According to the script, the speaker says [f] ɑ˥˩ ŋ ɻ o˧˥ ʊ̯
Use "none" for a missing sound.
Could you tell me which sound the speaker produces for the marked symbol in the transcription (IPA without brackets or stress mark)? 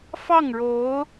f